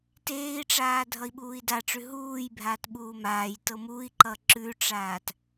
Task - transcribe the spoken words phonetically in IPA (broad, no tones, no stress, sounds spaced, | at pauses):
t eː i̯ ʈ͡ʂ aː dʱ ʌ i̯ ɓ uː i̯ d a ʈ͡ʂ ʉ ɦ uː j bʱ aː t ɓ uː m aː j t ɤ m u i̯ ǃ ʌ ǁ ʉ ʈ͡ʂ aː t